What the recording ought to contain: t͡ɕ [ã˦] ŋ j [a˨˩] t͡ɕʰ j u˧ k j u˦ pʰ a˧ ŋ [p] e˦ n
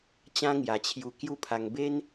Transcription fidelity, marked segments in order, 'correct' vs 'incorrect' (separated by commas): correct, correct, incorrect